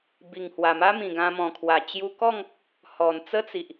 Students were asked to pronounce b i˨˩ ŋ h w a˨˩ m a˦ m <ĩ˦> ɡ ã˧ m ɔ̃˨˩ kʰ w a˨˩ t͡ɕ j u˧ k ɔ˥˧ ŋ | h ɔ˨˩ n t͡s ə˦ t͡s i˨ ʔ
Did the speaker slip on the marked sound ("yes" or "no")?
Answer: yes